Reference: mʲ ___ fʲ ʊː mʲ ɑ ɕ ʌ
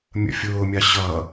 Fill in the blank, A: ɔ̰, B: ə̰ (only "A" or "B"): B